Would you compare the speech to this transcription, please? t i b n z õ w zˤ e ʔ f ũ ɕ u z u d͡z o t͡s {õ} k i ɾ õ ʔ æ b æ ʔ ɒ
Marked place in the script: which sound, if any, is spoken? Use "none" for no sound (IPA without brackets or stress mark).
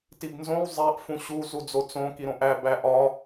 õ